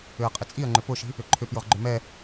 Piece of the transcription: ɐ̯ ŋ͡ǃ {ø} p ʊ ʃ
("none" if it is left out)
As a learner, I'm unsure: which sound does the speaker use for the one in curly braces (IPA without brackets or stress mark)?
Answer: ø